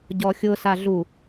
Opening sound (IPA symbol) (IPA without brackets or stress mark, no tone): ɟ